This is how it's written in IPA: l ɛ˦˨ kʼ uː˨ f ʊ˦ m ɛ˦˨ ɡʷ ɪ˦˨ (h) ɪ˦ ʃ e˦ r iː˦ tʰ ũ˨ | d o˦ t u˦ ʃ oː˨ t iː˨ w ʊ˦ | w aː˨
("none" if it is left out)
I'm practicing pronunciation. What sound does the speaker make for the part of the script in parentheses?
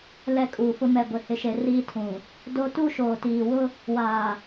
h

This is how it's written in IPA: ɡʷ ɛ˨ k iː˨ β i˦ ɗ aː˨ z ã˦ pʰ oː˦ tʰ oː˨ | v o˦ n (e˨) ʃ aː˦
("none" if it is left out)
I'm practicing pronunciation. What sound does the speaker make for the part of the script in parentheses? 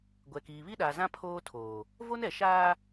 ɛ˨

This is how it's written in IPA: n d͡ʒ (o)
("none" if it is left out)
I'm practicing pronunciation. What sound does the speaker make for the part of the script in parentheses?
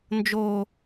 o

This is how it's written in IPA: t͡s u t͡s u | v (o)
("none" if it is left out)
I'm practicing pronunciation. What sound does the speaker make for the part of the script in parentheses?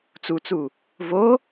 o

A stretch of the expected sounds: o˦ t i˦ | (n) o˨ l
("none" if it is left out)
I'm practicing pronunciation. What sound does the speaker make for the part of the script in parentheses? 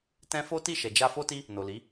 n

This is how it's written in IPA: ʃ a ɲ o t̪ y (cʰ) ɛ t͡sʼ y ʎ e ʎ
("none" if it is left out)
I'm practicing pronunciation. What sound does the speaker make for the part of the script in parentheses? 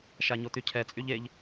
cʰ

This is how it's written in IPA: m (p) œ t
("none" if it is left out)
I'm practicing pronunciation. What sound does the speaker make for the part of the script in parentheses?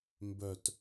b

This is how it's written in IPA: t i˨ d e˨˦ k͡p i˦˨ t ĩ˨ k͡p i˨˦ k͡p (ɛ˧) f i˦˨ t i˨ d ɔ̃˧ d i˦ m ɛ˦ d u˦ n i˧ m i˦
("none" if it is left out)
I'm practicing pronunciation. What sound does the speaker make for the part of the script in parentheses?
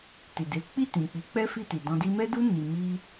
ɛ˦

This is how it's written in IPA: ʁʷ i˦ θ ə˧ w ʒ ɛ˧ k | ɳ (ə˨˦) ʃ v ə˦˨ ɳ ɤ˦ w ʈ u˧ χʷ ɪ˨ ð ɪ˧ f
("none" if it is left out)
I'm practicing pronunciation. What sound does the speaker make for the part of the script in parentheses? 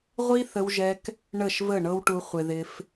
ə˦˨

